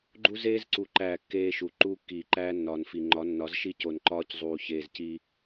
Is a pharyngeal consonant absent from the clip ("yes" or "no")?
yes